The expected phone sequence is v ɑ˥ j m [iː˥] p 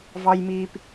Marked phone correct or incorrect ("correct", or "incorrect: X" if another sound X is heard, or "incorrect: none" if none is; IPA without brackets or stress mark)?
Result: correct